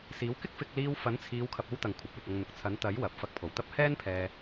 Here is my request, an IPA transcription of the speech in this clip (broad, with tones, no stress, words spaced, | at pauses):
siː˨˥wkɪ˥k̚fɪ˧k̚ liː˧wfɐ˨˥nt͡sʰiː˨˧wkʰɐ˨p̚ o˥wt̪ɐ˨ŋkʷʰɐ˨p̚wɪ˨k̚ ɐ˧ŋn̪ʊ˨k̚ t͡sʰɐ˨˥nt̪ɐ˨˥j wɐ˨p̚fɐ˧k̚pʰo˨˩wt̪ɐ˥p̚ hɛː˥npʰɛː˧